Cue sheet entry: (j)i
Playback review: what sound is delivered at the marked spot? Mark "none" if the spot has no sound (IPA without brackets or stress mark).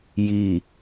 j